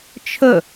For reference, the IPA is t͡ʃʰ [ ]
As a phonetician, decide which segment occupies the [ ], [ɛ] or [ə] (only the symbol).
ə